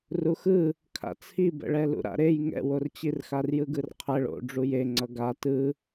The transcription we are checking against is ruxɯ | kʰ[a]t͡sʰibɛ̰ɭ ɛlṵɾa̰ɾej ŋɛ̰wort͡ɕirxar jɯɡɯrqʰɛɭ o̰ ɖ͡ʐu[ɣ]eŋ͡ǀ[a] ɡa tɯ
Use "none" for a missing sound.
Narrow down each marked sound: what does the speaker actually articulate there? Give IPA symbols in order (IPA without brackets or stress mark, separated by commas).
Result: a̰, j, ʌ